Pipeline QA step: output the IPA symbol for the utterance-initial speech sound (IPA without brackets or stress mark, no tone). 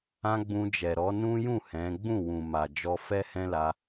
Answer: ã